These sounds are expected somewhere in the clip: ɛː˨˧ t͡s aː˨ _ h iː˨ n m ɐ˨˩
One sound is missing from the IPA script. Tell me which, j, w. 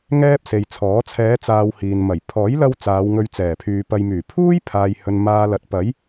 w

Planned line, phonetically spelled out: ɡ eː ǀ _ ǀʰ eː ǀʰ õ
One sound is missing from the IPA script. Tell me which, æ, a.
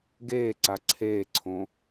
a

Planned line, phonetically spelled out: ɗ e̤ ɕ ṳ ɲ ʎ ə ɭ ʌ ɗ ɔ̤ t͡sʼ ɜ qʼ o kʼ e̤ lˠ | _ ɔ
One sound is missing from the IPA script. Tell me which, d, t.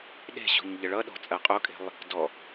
d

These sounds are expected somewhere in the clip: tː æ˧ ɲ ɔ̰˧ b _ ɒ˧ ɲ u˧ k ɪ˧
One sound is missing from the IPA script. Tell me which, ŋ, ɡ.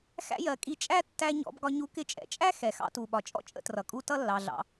ɡ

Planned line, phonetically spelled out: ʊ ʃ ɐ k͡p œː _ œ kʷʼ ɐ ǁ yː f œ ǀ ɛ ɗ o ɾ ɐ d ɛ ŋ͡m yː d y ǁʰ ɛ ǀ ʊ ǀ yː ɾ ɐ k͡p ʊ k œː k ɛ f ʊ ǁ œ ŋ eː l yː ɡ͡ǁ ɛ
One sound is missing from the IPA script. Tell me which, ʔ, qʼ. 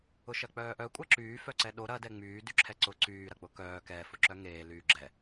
ʔ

